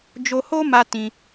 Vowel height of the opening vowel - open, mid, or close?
mid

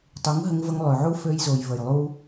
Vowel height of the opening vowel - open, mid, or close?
close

